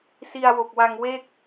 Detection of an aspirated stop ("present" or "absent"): absent